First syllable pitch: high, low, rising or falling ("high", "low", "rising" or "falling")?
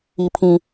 high